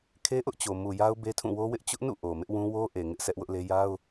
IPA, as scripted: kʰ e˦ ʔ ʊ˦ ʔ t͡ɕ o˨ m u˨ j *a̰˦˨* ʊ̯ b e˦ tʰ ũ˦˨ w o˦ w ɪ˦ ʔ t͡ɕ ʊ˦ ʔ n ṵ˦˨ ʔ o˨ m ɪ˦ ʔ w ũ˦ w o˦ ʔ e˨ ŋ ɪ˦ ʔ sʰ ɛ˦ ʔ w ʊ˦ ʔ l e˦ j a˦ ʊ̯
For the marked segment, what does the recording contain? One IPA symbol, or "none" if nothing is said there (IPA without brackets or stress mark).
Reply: a˦